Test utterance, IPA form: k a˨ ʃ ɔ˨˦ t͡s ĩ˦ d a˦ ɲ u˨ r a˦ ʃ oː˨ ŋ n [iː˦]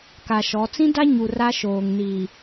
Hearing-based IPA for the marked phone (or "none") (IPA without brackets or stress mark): iː˨